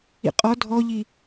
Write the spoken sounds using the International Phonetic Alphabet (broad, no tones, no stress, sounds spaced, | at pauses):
ḭ qʼ ɔ dʱ ɔ ʎ i